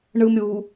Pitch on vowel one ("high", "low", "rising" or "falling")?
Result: low